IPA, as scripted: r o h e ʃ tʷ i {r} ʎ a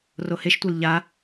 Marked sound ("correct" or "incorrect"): incorrect